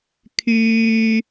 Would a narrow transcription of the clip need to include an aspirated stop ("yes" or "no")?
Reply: yes